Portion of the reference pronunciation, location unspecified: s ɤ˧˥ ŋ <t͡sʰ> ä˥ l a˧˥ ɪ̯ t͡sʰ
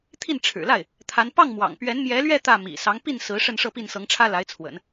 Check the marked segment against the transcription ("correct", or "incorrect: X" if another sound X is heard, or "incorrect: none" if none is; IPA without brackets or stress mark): incorrect: ʈ͡ʂʰ